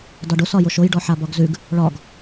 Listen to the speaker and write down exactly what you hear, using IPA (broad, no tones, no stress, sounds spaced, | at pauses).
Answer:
d ɒ ɖ o s ɒ j o ʃ o j ɖ ɔ ħ a b ɒ ɡ z ʉ ɡ | ɭ ɒ ɡ